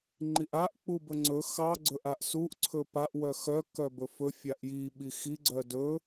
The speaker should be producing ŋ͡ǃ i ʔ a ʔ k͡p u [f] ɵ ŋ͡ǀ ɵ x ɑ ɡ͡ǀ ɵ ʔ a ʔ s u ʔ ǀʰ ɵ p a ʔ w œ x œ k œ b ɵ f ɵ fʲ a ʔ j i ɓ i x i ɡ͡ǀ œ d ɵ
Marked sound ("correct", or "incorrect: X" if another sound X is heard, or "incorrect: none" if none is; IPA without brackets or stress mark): incorrect: b